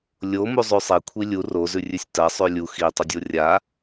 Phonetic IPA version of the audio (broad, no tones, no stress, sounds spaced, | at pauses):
lʲ o m u zˤ ʉ sˤ e kʷʰ i lʲ u r o z ʉ rʲ ʉ sʲ t ɐ sˤ ʉ lʲ u x i tˤ ɵ dʲ o rʲ a